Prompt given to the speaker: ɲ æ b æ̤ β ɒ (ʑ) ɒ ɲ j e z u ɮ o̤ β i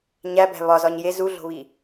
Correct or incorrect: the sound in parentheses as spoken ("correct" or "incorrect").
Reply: incorrect